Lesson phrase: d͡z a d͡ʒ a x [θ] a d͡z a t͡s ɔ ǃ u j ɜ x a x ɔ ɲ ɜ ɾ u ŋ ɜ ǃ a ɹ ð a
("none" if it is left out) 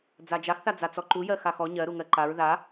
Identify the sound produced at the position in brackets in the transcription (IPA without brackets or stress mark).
θ